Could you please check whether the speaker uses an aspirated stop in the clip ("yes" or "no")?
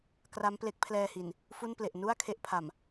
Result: yes